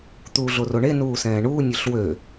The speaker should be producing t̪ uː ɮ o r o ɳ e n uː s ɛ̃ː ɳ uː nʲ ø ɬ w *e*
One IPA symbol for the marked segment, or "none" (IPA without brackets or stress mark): ø